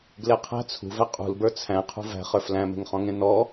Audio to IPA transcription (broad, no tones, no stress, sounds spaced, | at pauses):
ɡ l e qʰ æ̤ t͡sʰ ṳ v æ qʼ ṳ l b ə˞ t͡sʰ æ̃ qʰ ṳ v æ̤ χ ə˞ f l æ̃ m e̤ ŋ χ ɔ̃ ŋ ẽ n ɔ